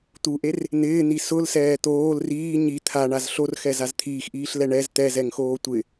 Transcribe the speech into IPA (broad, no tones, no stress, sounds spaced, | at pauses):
t̪ u ʔ e r | n̪ ɪː n̪ i s ʊ l s ɛː t̪ oː l r iː ɲ i t̪ʰ a ɳ a z ɬ o r x ɛ z a z t̪ʰ iː x ʔ iː ɬ l ɛ ɳ ɛ z t̪ ɛ z ɛ ŋ x oː tʷ ɪ